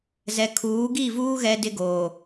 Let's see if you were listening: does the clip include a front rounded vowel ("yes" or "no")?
no